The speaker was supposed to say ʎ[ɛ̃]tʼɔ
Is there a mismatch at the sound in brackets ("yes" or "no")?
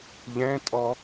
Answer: no